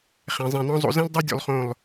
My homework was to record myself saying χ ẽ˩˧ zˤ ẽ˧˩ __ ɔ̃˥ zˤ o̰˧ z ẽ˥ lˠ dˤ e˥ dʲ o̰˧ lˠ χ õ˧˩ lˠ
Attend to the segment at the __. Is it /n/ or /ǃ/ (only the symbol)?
n